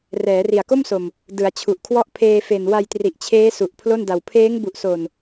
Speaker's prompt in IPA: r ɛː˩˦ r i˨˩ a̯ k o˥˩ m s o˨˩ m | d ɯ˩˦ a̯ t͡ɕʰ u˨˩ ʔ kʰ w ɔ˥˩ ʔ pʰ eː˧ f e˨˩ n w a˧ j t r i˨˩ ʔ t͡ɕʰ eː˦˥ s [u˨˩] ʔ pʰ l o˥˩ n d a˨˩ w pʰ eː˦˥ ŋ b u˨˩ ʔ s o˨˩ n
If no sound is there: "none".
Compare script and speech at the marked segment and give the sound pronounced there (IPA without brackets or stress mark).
u˨˩